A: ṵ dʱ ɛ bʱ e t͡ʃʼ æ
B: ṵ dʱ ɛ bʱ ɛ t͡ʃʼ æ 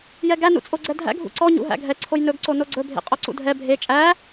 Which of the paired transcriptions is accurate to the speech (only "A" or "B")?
A